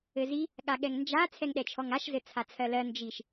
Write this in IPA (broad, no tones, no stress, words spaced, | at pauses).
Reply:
ɘzi | ɠaɠɛŋnd͡ʒa t͡sʰɛŋɗɛt͡ʃʰɔŋaʃ zɘt͡sʰat͡sʰɜlɜ nd͡ʒiʃ